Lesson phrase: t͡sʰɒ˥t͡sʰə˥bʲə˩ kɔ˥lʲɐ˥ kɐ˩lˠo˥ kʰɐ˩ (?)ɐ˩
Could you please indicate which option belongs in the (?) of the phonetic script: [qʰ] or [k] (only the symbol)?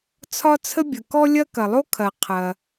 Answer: qʰ